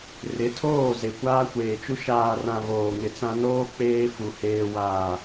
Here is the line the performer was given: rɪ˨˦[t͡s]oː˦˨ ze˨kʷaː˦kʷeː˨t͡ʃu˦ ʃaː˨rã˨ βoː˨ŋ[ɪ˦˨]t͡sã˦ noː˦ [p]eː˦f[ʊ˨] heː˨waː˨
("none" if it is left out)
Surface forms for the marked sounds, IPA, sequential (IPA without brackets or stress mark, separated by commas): tʰ, ɪ˨, k͡p, u˨